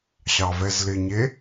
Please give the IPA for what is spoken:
ɕ ɑ v ɛ z l ɪ ɲ e

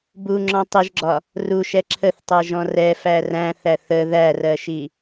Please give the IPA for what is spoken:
b u ŋ͡ǁ ɔ̃ tˤ i ʒ ɡ͡ǁ ɒ | r u ʃ ɛ ǁʰ ə θ tˤ ɛ ʒ ɔ̃ r ɛ f æ r æ̃ θ æ θ ə ð æ r ɜ ʃ i

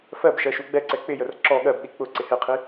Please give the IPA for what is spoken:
f ɜ b ʃ ɜ ʃ u ɡ͡b ɛ ǀ ɛ k͡p ɪ j ə r ǁ ɔ ɠ ɜ b ɗ i k͡p ʊ ǀ ɪ h ɪ qʰ i

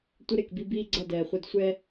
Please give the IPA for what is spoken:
tʷ ə˦ ɾ e˨ k b i˦ b iː˦ ɡ͡ǀ ʌ˦˨ d ɛː˨ χʷ ɛ˦ d sʷ ɛ˦

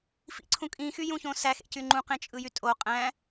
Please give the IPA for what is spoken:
f ḭ ǀʰ ũ kʼ ĩ x y j ũ ç õ s æ x ḛ c y ŋ͡ǃ ũ q ẽ t͡ʃʼ ɯ j y tʼ o qʼ æ̃

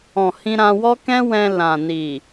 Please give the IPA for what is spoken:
ɔ̃˨ h ĩ˧ ɾ ã˧ w ɔ˦ k ɛ̃˦ w ɛ̃˧ l ã˨ n i˨

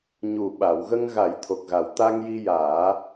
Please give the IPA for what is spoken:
ɲ u˨˩ ɓ a˨˩˨ w ɣ ə˧ ŋ ɣ a˨˩˦ j t̪ʰ o˨˩ k̚ ɣ a˨˩ w t̪ a˧ ŋ j i˧ j aː˨˩˦

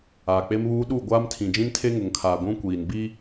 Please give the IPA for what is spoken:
aː˨ k͡p e˦ m β uː˦ ɗ u˦˨ ɡʷ aː˦ m tʰ ĩ˨ d͡ʒ ĩ˦ n tʰ e˦ ŋ ʊ˨ ŋ kʰ aː˨ ɡʷ ũ˦ kʷ iː˨ n b i˦

